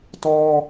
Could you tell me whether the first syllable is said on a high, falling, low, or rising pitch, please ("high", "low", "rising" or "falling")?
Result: high